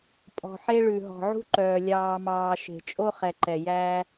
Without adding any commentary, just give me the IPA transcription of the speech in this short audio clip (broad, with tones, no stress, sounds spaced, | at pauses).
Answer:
pʼ ɔ̤˨ ħ e˦ ɭ ʉ˨ ɦ ɔ̤˨ ʕ ṳ˦ ǃ œː˨ lʲ ɑː˨ m ɑː˨ ʃ e̤˨ t͡ʃʼ o˦ χ ɛ˨ ǃ ɛ˨ j æ˦